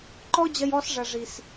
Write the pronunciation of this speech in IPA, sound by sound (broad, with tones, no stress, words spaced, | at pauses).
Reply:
ǃɔ˦d͡ʑɐ˧jɔ˧sʐɐ˨ ʐi˨s